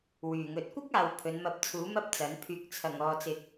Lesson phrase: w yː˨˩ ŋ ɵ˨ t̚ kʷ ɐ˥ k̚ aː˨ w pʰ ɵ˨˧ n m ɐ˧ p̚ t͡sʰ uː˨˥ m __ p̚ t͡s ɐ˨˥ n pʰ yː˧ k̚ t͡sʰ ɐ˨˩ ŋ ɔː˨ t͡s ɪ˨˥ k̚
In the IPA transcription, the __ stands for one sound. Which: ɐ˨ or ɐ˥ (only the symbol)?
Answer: ɐ˥